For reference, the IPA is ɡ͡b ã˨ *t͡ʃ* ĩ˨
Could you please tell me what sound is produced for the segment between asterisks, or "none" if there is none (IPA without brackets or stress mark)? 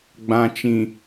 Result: t͡ʃ